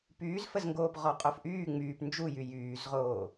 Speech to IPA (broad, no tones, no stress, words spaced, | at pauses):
pyːzfəzŋɡoːp ʁɔqʼofʔyː ŋ͡myːp nd͡ʒujy jyːzʁoː